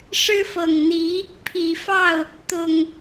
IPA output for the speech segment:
ʂ ɻ̩˦ f ɤ˨˩ ŋ n̪ i˨˦ | pʰ i˨˩ f ɑ˥˨ ʊ̯ | t̪ ʊ˨˩ ŋ

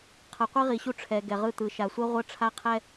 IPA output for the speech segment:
qʰ ʌ˨ qʷ i˦ ʁ i˨ ɕ u˦ ʈ͡ʂʰ ɛ˨ ɡ ɛ˨ ʁ ɯ˦˨ t̪ ɯ˨ ʃ a˨ sʷ ɛ˦ ʁʷ ʌ˦ ʈ͡ʂʰ a˦ qʰ ɛ˦

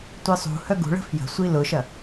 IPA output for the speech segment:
tʷ ɪ sˤ ṳ h œ ɡ ṳ ɭ ə̤ f j ə̤ sʷ i l ʊ ʃ ɐ

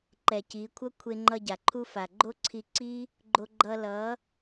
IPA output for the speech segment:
ǃ ɛ˨ c i˨˦ kʷʰ ʌ˦ kʷʰ e˧ ŋ͡ǃ ʌ˧ ɟ a˨ ǃʰ u˦ f a˨ ɡ͡ǃ o˦ ǀʰ i˧ ǀ i˦ | ɡ͡ǃ o˧ ɡ͡ǃ ʌ˧ l ʌ˨˦

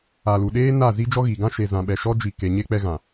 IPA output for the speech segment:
a˨ l u˨ ɗ eː˦ n a˦˨ z i˦ d͡ʒ ɔ˦ ɣ i˨ ɡ ã˦ ʃ e˨ z ã˨ ɓ ɛ˨ ʃ ɔ˦ d͡ʒ i˨ k e˨ ɲ e˦ k͡p ɛ˦ ɣ ã˨

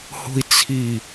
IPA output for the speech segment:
h o̤ i̯ t͡sʰ i

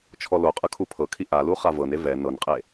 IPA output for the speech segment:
t͡ʃʰ ɔ l o qʼ ɯ kʰ u pʰ ɤ kʰ i ʔ a l u χ a v ɤ n e v ɛ n ɤ n qʼ e

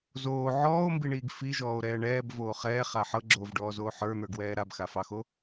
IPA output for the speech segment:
z oː ʕ ɔː o̯ m b i ɳ iː ɡ f i ʒ ɔː o̯ ɾ ɛː ɳ ɛː b v oː χ ɛː χ a ħ ɤ ɡ͡ǁ oː v ɖ ɔː z oː ħ ə˞ n̪ ə˞ ɡ w ɛː ɾ a b x a f ɑ x o

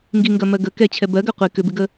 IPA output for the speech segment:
ŋ ɡ i ŋ ɡ ɜ m ɜ ɡ ə k ɛ t͡ɕʰ ɛ b ɜ ɡ ɜ qʷ i k ʏ b ɪ ɡ ə

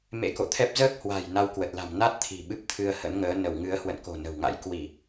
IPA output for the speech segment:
m ḛ˧˥ k o̰˧˨ t̪ʰ ɛ˦˥ p̚ z əː˦˥ k̚ h w a̤˨˩ j n a˧ w k w ə˨˩ t̚ l a̤˨˩ m n a˦˥ t̚ t̪ʰ i̤˨˩ ɓ ɨ˦˥ p̚ t̪ʰ ɨ˧ ə̯ h ə̰˧˥ n ŋ əː˨˦ n ə˧˩ w ŋ ɨ˨˦ ə̯ h w ə̰˧˨ n k o̤˨˩ n ə̤˨˩ w ŋ a̰˧˥ j k w i˧˩˨

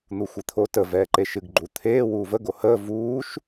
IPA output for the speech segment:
n̪ u xʷ i t̪ʰ o t ə v ɛː ǃ e ʃ ɨ ɡ ɡ͡ǃ u t̪ʰ eː w uː v ə ɡ o h əː v uː ʃ

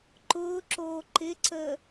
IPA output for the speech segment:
ǃ ʊː ǁ oː ǃ ɪ ǀ əː

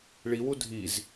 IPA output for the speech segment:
ɭ i w u dʱ i z

